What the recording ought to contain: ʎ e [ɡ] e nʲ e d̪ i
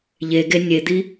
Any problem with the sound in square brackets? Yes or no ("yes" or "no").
no